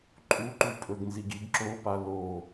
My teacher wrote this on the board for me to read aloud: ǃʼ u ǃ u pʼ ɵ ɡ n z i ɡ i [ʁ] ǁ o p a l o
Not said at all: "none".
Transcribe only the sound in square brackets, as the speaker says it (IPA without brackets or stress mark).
ɡ